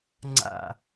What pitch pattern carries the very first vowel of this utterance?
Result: falling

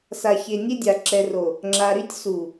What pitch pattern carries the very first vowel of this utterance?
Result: low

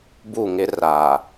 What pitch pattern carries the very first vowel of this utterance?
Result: falling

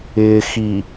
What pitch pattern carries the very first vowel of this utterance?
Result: low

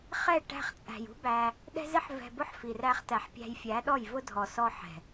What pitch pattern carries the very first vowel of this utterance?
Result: falling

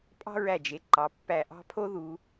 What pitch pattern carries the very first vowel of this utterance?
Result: high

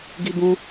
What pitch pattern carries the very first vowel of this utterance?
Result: high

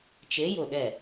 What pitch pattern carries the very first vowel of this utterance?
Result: rising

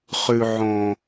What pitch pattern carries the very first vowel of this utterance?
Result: low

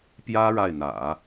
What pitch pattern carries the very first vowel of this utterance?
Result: high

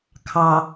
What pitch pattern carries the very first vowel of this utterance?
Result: low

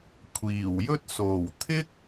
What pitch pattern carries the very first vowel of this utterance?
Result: low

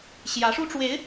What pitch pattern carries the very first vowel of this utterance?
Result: rising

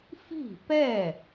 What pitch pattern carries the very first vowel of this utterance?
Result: falling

